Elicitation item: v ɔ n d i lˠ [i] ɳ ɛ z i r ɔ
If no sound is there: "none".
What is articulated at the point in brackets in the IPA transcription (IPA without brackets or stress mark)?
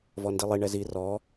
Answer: i